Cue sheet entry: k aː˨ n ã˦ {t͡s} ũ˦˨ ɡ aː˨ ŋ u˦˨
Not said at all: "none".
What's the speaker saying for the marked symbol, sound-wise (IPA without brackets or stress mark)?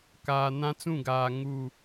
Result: t͡s